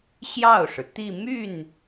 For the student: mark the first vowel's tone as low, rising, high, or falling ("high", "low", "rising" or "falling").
falling